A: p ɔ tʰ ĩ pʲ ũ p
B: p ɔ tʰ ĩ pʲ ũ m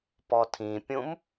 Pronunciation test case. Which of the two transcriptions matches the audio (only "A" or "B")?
B